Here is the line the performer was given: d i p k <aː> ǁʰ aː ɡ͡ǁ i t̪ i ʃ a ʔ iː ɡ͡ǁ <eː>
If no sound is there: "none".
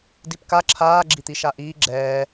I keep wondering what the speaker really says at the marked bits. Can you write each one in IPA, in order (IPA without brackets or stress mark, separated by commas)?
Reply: a, ɛː